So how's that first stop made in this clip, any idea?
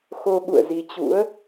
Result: implosive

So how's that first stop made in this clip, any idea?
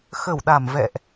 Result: implosive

